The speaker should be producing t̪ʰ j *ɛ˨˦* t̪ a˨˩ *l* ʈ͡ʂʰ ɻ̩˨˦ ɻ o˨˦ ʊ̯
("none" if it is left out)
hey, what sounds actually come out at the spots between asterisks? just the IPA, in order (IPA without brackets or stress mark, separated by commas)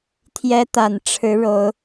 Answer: ɛ˦, n